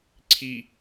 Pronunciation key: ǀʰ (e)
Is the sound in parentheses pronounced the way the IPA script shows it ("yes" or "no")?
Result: no